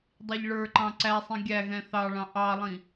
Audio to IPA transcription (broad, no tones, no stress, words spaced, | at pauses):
dˤiʎɭə˞ǃɑ̃ ǀæsˤĩ ɡʲæ ɣɛ̃θɑɭɑ̃ ʔɑlˠĩ